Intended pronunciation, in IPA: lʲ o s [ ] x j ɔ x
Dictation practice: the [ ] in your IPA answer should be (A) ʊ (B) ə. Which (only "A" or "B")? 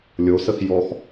B